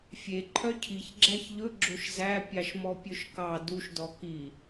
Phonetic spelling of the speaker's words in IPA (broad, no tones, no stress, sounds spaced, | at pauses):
fʲ e ǃʰ œ cʰ i ç ɡ͡ǁ æ ç ʎ ɵ ɡ͡ǁ o ʃ z æ pʲ ɑ ʃ m ɔ pʲ ɵ ʃ k ɑ d u ʃ d ɔ k i